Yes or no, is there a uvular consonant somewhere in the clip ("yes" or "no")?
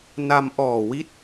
no